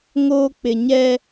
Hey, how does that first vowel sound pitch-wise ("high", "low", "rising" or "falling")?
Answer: high